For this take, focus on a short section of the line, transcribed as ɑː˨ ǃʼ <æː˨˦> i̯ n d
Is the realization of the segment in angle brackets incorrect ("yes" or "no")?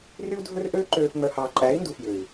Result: no